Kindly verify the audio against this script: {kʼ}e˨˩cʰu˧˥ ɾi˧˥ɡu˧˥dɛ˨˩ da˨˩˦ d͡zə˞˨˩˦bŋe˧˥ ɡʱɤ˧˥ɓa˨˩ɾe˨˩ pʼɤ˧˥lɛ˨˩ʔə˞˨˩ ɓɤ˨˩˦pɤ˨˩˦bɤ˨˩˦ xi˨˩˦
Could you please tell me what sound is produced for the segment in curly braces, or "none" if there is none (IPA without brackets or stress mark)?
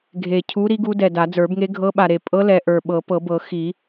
ɡʱ